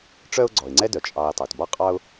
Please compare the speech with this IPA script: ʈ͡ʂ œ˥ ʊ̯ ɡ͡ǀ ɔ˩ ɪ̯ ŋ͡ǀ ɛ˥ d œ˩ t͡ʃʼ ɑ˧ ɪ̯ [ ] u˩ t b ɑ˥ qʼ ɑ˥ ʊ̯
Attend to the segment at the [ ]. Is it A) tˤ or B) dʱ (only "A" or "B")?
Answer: A